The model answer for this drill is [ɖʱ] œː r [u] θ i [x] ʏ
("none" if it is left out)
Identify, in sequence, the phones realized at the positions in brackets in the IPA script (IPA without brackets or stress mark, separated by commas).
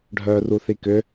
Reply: ɖʱ, u, k